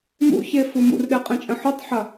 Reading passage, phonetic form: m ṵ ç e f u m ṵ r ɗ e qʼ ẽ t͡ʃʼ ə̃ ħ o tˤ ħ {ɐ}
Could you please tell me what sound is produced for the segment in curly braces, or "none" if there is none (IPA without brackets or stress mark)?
ɐ